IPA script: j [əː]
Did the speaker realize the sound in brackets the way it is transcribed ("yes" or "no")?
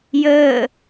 yes